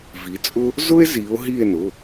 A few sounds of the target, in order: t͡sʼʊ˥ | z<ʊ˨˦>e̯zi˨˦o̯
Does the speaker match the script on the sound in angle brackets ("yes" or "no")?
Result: no